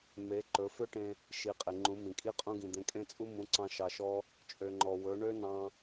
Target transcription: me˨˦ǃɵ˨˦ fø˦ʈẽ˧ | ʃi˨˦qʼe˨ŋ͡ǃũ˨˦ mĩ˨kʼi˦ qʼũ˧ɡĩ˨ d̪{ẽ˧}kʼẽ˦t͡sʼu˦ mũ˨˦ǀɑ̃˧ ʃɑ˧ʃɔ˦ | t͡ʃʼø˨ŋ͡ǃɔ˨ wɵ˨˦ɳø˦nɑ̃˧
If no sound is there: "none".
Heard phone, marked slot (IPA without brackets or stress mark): ẽ˧